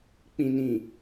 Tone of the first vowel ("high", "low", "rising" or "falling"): low